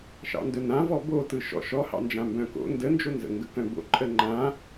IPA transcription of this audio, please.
ʃ ɑ̰ n d œ n ã v ɔ b o t ɯ ʃ ɔ̰ ʃ ɔ h ɑ̰ n d͡ʒ ã m b œ̃ k o̰ n d ə n d͡ʒ o n z ə̰ ŋ ɡ ə k œ̃ b o̰ ǃʼ ə ŋ͡ǃ ã

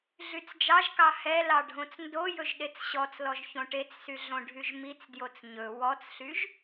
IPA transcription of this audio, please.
ɮ y t͡s d͡ʒ ɑ ʒ k ɑ h ɛ l ɑ ɖʱ õ t͡s n d o j ɵ ʒ ɗ e t͡s ɕ ɔ t͡s l ɔ ʒ ç õ ʈ e t͡s s y ɮ õ ɖʱ y ʒ m i t͡s d j o t͡s ɲ ɵ w ɔ t͡s ɬ y ʒ

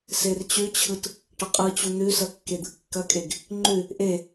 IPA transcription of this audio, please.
s e r t͡ɕ ʉ t͡ɕʰ ɯ t | ʈ ɐ qʼ ɯ t͡ɕ u n̪ ʉ s ɐ kː e d̪ ɯ kː ɐ kʼ e ɡ | ŋ͡ǃ ʉ | ʔ e

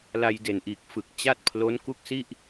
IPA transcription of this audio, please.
l a˧ j d e˨˩ n ʔ iː˨˩ k̚ f ɯ˨˩ k̚ t͡ɕ a˥˩ t̚ pʰ l o˦˥ n k u˥˩ k̚ s i˥˩ ʔ

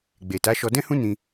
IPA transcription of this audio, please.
ɡ͡b e˨ t a˨˦ ʃ ɔ˧ d ɛ̃˦ h ũ˦ n ĩ˧

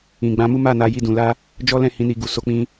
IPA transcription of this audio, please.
ĩ˨ ɡ͡b ã˧ m u˦ m a˦˨ n a˧ j i˦ d ũ˧ l a˦ | d͡ʒ ɔ˦ l ɛ̃˦˨ h ĩ˨˦ n i˧ ɡ u˨ s o˧ k͡p ĩ˧

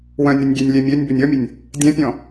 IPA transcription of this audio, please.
w œ̃ nʲ ɾ ʏ nʲ ɡʲ e nʲ lʲ ɛ mʲ ø nʲ b ʏ nʲ ɔ mʲ ʊ nʲ | dʲ ɛ̃ pʲ ɔ̃

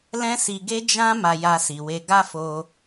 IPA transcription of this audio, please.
l ɛ̃˦ s i˧ ɡ e˦ d͡ʒ ã˦ m a˧ j a˧ s i˨ w e˧ ɡ a˦ f o˧

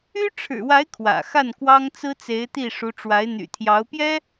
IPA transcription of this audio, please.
y˥ ʈ͡ʂʰ ɻ̩˨˩ w a˧˥ ɪ̯ kʰ w ä̰˨˩ x a˥˩ n k w ɑ˥ ŋ t͡s ɹ̩˥ t͡s e˧˥ ɪ̯ t̪ i˥˩ ʂ u˧˥ ʈ͡ʂ w a˧˥ ɪ̯ n̪ y̰˨˩ t̪ʰ j ɑ˧˥ ʊ̯ p j ɛ˥

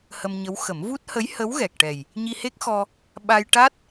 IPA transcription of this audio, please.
h ə˧ m ɲ ə˧˥ w x ə˨˩˦ m v u˦˥ t̚ h ə˧˥ j h ə˧˥ w ɣ ɛ˨˩ k̚ ʈ ɛ˨˩ j | ɲ i˧ h e˦˥ k̚ x ɔ˧ | ɓ a˧ j ʈ a˦˥ t̚

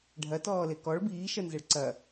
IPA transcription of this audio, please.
ɖʱ ɐ t ɔː l e k ɔ ɭ b iː ʃ ɜ n z ɛ ɭ ǀ ɐ

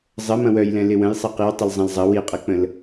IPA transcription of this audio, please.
zˤ ə m ɐ̃ w œ j l ɛ̃ l ɪ w ə̃ j sˤ ɐ q i w tˤ ɪ l zˤ ɐ̃ l zˤ ɐ w i qʼ ɐ k͡p ə̃ l

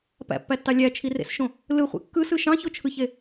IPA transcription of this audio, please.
p æ̰ pː æ tː ɑ lʲ æ t͡ʃʰ i r ḛ s ʃ õ | l ɯ χʷ ḛ kː ɯ s ɯ ʃ ɑ̃ ç o t͡ʃʰ ɯ ç e

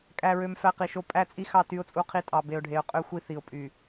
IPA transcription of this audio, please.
kʼ æ˨ ɹ ø˨ m f æ˦ q i˨ ʃ o˦ pʼ æ˦˨ t͡sʼ i˦ x ɑ˦˨ t y˦ ʊ̯ t͡sʼ u˦ qʰ i˦ tʼ ɑ˨ b e˨ ʊ̯ ɖʱ e˨ ʊ̯ qʼ ø˦ xʷ i˦ θ i˨ ʊ̯ pʼ y˨

